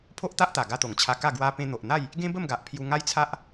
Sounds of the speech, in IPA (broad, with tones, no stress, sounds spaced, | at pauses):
pʰ o˦ ʔ t̪ a˦ ʔ t̪ a˨˩ ɡ a˧ t̪ o˨˩ ŋ t͡ɕʰ a˧ k a˥˧ ɡ w a˧ p ẽ˧ n̪ o˨ ʔ n̪ a˥˧ j | ɡ ẽ˦ b ə˥˧ m ɡ a˨ ʔ pʰ j u˧ ŋ a˦ j t͡sʰ a˦ ʔ